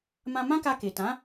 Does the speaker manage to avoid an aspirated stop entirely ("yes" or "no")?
yes